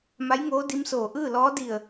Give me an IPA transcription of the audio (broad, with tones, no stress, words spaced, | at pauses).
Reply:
ma˧˥jŋoː˧˥ di˧˥msoː˧˩ ʔɯː˥˨lɔː˧˥ di˧˩ə̯